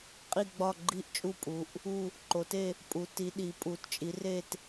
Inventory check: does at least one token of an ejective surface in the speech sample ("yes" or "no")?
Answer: yes